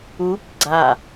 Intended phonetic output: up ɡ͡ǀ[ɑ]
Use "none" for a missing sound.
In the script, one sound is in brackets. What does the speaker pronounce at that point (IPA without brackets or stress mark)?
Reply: a